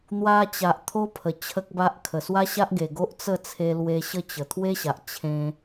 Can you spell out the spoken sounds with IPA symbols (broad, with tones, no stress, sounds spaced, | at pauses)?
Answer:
n̪ w a˧ t͡ɕ a˨ ʔ t̪ʰ o˦ pʰ ə˨˩ t͡ɕʰ ə˦ k̚ b a˦ ʔ kʰ ə˨˩ s w a˦ ɕ a˦ ʔ ɡ e˨˩ ɡ o˦ ʔ t͡s ə˥˧ t͡sʰ e˧ l w e˧ ɕ ə˥˧ t͡ɕ ə˨˩ t̪ʰ w e˦ ɕ a˨ ʔ t͡ɕʰ ẽ˧